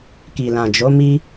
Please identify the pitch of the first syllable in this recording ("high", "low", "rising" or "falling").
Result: low